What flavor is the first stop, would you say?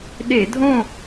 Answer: implosive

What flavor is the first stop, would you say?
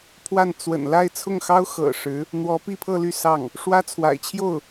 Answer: aspirated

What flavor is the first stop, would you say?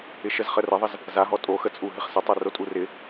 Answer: ejective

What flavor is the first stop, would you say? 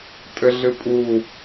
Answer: ejective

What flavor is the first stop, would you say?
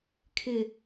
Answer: aspirated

